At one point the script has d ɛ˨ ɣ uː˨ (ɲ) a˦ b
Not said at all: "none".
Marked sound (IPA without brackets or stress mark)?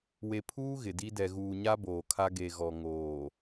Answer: ɲ